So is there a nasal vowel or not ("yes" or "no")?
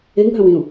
yes